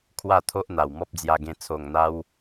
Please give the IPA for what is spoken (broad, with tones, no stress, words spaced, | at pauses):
kʰwa˥˧t̪ʰo˦ʔ n̪a˨˩wmɔ˦p̚d͡zja˧ɡẽ˧ t͡sʰo˨˩ŋn̪a˧w